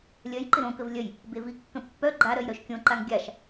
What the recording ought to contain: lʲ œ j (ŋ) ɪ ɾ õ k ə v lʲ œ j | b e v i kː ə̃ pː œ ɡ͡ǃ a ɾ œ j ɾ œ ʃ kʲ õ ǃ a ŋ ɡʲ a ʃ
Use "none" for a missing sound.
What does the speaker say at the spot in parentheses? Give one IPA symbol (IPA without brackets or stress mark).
ǃ